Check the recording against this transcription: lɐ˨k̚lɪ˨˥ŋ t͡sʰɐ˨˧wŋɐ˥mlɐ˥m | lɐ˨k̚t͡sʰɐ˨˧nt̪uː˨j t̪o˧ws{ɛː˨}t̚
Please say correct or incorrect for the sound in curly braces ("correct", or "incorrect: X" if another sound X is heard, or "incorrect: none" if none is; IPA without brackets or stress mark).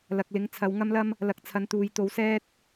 incorrect: ɛː˥